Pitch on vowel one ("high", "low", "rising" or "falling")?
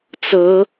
rising